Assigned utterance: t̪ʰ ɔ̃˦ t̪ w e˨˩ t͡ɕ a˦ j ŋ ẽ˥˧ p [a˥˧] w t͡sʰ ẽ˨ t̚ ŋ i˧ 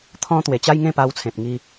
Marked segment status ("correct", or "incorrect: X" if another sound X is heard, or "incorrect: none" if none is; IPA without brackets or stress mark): incorrect: a˧